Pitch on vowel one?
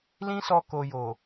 high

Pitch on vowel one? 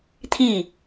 falling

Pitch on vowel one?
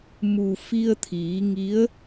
low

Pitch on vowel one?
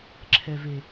low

